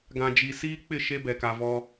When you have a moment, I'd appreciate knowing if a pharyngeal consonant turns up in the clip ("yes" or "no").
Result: no